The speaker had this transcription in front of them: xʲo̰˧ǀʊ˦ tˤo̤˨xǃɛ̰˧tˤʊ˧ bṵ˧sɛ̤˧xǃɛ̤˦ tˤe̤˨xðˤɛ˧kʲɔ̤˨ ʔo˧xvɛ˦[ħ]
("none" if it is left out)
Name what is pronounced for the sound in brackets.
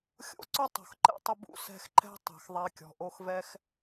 x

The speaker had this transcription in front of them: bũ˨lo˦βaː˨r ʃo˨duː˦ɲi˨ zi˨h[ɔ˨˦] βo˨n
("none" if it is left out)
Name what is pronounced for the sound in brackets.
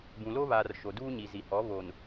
ɔ˨˦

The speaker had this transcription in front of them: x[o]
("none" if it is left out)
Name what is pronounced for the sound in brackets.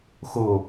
o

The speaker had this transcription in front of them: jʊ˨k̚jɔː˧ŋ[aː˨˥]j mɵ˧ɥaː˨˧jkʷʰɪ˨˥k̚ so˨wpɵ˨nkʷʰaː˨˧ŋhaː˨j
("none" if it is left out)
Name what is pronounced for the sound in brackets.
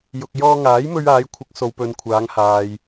aː˨˥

